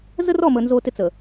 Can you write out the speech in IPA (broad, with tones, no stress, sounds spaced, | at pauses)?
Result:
z ə˦ r ɔ˦˨ m ə˨ n z o˦ t ɪ˦ t͡s ə˨